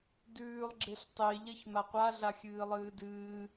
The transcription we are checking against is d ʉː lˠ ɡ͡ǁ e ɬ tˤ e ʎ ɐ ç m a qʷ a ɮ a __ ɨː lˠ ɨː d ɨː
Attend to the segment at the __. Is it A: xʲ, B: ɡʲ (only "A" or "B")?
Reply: A